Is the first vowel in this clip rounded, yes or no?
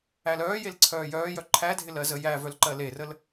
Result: no